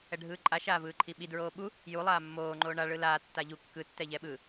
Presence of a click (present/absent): present